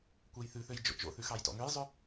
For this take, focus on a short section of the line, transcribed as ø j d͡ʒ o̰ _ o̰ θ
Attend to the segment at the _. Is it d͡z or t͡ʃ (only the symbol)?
t͡ʃ